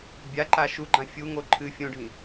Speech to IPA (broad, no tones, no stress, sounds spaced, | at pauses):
bʲ a ǃ a ʃ u ɡ͡ǃ ã fʲ u ŋ o ǃʰ ɨ fʲ õ ɖʱ ĩ